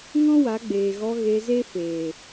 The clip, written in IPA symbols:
ŋ ɔ̃˦ w a˨˦ ɡ͡b eː˨ ɣ ɔ˧ ɣ e˧ z e˦ f eː˨

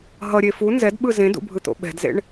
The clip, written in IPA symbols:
ɦ ʌ ɾʲ e f u n z ɛ d ɓ ɯ z ẽ d ṵ bʱ ɯ t̪ o̰ ɓ ɛ̤ d z ḛ ɳ

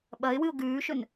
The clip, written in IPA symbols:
ɓ ɐ ɪ̯ w ɨ ʊ̯ ɡ ʉː ʃ ɵ n

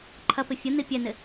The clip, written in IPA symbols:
ǃʰ ɐ p ɪ fʲ ə n̪ i pʲ ɛ n̪ ɪ

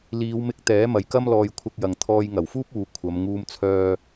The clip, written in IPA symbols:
l iː˨˧ w m ɪ˧ k̚ t̪ ɛː˨˥ m ɐ˨ j k ɐ˥ m l ɔː˧ j kʷʰ ɐ˧ k̚ j ɐ˨ ŋ t̪ʰ ɔː˧ j ŋ ɐ˨˩ w f uː˥ p̚ uː˨˧ kʷʰ ɐ˨˧ m ŋ uː˧ m t͡sʰ œː˧

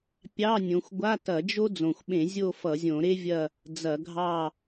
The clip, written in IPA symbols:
pʲ ɑ˧˥˧ nʲ õ˨˦ xʷ ɡʷ a˧˥˧ t ɐ˧˩˧ d͡ʒ o˥ d͡z õ˨˩ xʷ ɓ ẽ˧˩˧ zʲ o˦˨ f ʌ˧˩˧ zʲ õ˧˩˧ ɾ e˥ vʲ ɐ˦˨ | d͡z ɐ˧˩˧ ɡʱ ɑ˦˨

